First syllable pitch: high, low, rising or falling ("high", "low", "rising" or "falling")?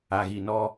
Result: low